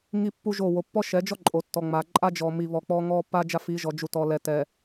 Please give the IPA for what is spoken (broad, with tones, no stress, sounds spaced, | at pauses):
ŋ i˦ pː u˦ ʒ o˦˨ w o˨ pː ɔ˦ ʃ ɛ˨˦ d͡ʒ ɔ˦ ǃʼ o˨ tː ɔ˨ ŋ͡m a˨ ǃʼ a˦ d͡ʒ ɔ˨ m i˨ β ɔ˨ k͡p ɔ˦ ŋ ɔ˦ pː a˦ d͡ʒ a˦ f i˨˦ ʒ ɔ˨ d͡ʒ u˨ t ɔ˨ l ɛ˨ t ɛ˨